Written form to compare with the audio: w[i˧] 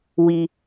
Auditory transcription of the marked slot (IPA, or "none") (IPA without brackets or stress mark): i˧